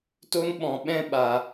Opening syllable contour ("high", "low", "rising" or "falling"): high